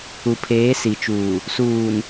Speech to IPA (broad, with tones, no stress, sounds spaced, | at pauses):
u˨ pʰ eː˨˦ s i˨ t͡ʃ uː˨ | s uː˨ n